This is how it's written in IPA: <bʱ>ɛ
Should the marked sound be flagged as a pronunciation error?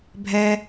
no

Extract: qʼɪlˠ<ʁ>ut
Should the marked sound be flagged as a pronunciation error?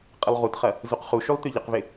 no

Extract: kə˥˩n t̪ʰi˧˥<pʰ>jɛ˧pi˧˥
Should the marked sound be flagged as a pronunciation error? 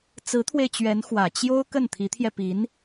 yes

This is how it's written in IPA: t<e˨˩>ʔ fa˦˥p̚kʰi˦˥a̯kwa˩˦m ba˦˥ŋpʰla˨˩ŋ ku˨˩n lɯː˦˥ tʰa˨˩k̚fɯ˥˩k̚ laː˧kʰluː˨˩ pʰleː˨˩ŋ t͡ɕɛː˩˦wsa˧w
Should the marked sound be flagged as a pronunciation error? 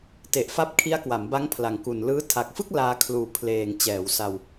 no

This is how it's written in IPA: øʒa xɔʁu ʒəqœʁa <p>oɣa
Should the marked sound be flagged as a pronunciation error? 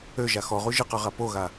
no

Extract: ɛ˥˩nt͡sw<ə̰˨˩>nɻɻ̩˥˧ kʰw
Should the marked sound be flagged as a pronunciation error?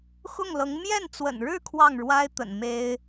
no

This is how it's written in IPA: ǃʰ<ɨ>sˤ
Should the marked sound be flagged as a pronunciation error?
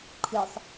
no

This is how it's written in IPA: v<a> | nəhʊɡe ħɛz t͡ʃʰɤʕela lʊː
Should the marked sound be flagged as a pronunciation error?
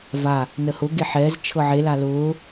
no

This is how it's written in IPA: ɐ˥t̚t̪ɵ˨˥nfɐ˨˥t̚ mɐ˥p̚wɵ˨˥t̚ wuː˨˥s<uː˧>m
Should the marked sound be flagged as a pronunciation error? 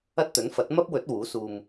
no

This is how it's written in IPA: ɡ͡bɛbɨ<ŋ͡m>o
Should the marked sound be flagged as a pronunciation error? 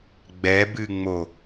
no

